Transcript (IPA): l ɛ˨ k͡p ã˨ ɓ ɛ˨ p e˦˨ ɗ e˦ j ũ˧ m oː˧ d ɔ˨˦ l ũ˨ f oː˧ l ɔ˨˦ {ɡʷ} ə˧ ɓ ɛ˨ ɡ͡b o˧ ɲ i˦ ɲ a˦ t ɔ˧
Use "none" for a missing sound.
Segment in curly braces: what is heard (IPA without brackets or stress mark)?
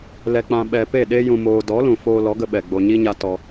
ɡ